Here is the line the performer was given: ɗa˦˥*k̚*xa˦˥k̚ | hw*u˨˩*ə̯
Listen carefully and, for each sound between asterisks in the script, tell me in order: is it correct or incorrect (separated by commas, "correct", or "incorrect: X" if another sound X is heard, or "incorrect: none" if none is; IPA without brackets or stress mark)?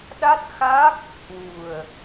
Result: incorrect: t̚, correct